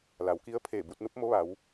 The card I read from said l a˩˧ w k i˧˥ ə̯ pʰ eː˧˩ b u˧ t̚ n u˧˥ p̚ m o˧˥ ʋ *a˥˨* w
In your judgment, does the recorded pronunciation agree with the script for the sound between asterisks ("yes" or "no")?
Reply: no